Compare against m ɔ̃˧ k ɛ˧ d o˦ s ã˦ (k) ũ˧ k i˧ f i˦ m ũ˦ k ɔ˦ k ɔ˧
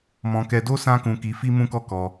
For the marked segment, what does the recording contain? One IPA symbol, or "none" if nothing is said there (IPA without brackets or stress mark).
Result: k